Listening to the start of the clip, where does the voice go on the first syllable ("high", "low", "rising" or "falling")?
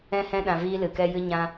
high